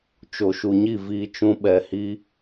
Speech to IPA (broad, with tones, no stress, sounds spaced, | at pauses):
t͡ʃ o˨ ʃ u˨ ɲ i˦˨ v iː˧ t͡ʃ ũ˦ ɓ ɛ˧ h i˦